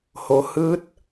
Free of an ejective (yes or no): yes